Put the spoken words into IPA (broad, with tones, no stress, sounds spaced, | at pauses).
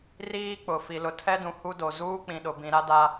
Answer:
r iː˦ k͡p ʊ˨ f i˨ l ʊ˨ tʰ ɛ˦ d ũ˨ h u˦ d o˨ z uː˦ k͡p ĩ˨ ɗ ʊ˨ b ĩ˨ ɾ a˦ d a˦